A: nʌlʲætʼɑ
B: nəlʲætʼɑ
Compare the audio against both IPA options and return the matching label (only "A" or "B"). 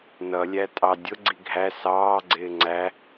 A